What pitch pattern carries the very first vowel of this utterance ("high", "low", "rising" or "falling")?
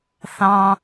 high